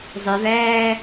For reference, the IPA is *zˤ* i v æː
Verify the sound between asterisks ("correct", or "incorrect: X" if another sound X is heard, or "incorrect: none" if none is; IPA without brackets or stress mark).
correct